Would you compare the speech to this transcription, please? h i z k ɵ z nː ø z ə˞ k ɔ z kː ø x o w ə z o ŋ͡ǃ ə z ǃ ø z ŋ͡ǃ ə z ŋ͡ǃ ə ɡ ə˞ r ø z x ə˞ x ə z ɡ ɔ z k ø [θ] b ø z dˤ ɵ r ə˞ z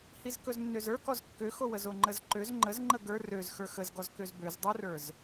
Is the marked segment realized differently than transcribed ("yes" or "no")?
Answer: yes